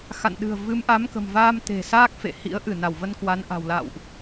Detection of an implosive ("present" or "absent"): present